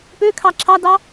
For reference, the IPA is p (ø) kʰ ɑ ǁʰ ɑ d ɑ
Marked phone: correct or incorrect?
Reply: correct